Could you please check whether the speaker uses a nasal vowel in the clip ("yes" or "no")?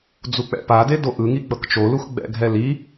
no